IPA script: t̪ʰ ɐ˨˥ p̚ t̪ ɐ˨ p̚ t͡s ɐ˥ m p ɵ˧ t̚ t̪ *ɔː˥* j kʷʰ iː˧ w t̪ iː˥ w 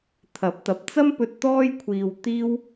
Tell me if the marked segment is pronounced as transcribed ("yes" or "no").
yes